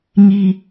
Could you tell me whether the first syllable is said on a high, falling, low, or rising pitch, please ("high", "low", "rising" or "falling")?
low